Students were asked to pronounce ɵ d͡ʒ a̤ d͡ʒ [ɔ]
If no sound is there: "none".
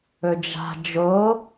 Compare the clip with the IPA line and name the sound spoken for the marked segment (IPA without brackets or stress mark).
o